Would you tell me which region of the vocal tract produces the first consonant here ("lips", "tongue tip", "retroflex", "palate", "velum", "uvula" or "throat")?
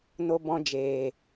tongue tip